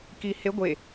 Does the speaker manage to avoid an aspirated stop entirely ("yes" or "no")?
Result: yes